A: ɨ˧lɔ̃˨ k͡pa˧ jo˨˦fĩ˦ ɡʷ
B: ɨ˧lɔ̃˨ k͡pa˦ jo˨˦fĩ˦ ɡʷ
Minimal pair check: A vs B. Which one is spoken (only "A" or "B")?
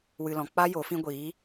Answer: B